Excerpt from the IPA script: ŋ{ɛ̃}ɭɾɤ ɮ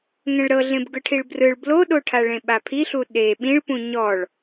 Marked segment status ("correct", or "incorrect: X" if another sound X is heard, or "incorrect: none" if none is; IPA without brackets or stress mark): correct